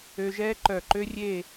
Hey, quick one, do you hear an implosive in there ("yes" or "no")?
no